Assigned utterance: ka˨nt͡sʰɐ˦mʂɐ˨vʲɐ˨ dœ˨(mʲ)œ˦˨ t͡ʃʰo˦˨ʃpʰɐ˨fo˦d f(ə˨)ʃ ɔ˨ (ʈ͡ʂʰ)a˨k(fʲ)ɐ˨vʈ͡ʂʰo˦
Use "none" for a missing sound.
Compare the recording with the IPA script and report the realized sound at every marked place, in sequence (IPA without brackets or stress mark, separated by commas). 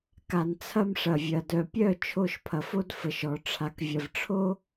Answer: pʲ, ə˨, ʈ͡ʂʰ, vʲ